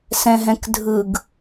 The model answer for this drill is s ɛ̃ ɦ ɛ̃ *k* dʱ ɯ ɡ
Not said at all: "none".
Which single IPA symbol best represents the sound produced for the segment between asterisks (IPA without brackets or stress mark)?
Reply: k